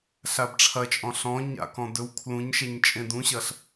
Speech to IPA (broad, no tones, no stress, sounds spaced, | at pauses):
ɬ a b ʈ͡ʂʰ ɐ t͡ʃʼ ɔ̃ ɬ ɔ̃ ɲ a̰ k ɔ̃ d ɵ w kʰ l ũ ɲ ʃ ɛ ɲ t͡ʃʼ ẽ d ũ ɕ ɐ ɬ